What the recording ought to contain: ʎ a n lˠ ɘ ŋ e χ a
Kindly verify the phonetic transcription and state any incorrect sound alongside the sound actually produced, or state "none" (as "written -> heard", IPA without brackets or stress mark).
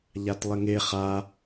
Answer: n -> t